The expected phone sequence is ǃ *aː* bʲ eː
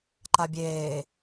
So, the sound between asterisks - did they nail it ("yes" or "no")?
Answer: no